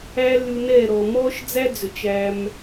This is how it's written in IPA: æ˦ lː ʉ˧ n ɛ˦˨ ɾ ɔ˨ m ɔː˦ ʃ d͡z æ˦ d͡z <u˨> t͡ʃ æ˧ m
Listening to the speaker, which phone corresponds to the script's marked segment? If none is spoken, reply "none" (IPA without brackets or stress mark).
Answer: ø˨